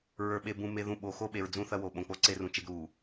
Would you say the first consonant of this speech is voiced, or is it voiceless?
voiced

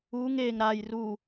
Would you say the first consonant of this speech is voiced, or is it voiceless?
voiced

